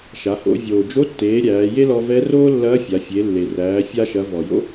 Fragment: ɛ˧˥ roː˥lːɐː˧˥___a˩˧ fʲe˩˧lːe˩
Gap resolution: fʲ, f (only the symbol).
fʲ